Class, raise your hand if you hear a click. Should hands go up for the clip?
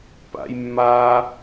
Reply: no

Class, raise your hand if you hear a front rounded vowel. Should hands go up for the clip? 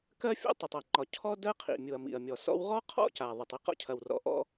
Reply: no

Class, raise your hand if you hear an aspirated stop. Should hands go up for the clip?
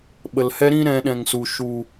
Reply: no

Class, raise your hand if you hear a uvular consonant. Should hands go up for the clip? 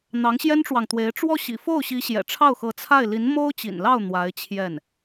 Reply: no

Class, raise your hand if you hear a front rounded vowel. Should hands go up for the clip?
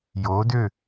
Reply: yes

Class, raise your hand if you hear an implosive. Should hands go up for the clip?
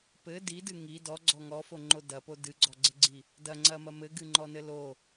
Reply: no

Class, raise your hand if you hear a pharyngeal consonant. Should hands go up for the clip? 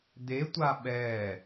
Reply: no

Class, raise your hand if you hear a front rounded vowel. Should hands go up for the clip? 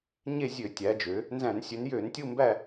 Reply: yes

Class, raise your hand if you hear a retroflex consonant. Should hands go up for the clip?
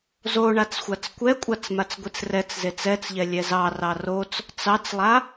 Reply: yes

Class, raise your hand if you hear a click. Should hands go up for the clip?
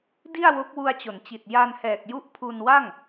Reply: no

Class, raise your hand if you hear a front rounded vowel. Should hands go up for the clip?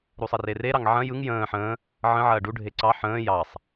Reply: no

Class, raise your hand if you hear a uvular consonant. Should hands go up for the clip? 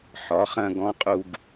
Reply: yes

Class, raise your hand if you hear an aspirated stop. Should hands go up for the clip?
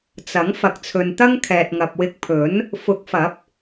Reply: yes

